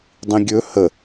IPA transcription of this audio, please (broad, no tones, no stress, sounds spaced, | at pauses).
dˤ ĩ ɡʲ ɵ h ə